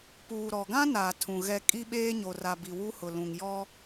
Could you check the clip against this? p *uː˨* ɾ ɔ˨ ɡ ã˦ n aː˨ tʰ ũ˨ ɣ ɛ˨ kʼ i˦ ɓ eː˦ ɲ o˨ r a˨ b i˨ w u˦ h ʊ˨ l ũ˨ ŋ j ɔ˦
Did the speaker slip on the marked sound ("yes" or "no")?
no